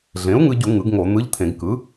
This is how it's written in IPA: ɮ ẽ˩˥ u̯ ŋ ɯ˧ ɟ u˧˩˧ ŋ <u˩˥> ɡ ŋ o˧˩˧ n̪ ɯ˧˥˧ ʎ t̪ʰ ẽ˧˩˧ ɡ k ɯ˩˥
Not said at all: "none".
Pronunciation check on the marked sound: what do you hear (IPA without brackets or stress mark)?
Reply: ɯ˩˥